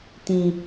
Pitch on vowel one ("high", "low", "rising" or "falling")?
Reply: low